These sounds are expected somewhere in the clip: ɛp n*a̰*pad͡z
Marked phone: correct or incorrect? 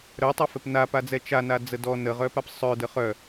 incorrect